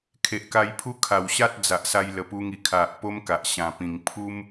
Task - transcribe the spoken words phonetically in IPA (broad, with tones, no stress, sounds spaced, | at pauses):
kʰ e˨ ʔ k a˧ j pʰ u˦ kʰ a˨˩ w ɕ a˦ t̚ d͡z a˨ ʔ s a˧ j l ə˨˩ p u˧ ŋ i˨˩ kʰ a˨ ʔ p o˦ m k a˨ ʔ ɕ ã˨˩ p ĩ˨˩ ŋ pʰ u˦ m